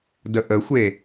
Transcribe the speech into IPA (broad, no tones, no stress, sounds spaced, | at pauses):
d ə ʔ ə xʷ e